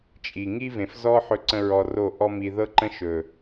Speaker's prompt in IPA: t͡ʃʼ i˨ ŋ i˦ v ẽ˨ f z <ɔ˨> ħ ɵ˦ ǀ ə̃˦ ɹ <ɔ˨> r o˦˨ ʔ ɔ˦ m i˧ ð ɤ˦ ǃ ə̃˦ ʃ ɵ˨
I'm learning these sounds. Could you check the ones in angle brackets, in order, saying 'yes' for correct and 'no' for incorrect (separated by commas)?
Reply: no, no